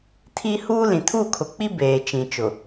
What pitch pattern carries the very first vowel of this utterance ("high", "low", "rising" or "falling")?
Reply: high